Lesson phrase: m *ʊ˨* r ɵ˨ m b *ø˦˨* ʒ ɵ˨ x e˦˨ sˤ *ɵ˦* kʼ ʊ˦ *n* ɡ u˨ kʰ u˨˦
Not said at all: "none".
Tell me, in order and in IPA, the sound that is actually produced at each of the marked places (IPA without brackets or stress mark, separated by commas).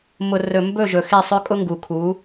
ʊ˨, ɵ˦˨, ɵ˦, ŋ